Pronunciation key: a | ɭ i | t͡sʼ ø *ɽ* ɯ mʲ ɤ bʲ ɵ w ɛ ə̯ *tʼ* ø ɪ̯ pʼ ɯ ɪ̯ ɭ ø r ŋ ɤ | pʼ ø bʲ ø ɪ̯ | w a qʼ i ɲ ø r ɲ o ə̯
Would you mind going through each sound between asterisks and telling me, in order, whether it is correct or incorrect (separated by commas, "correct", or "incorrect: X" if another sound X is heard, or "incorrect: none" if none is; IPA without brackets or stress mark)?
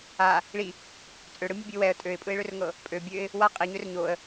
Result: correct, correct